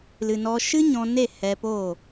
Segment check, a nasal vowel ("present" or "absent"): present